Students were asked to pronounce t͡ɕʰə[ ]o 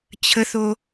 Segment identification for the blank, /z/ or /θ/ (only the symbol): θ